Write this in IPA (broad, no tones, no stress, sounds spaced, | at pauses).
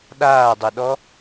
ɗ aː dˤ ɯ ɗ ɔ